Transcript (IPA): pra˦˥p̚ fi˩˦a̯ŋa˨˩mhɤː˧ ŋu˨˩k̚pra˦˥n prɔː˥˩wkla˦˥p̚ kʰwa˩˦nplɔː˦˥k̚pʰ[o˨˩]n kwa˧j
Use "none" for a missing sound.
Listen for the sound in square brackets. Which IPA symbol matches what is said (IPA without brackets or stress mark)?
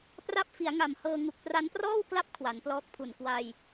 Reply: u˨˩